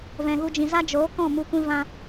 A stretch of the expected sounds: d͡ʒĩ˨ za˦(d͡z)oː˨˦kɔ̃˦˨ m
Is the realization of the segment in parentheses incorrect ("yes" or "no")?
yes